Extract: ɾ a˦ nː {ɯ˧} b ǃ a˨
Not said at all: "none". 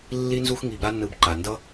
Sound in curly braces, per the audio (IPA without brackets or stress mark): ɯ˧